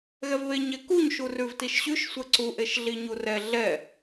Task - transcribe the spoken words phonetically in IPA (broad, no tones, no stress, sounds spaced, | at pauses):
ɣ ɛ v β e ɲ ɛ k u ɲ ʃ u r ʉ v t i ʃ ɕ ʉ ʃ sʷ ɛ ǀ u ʔ e ʃ ɮ i ɲ u r ɛ ɮ ɛ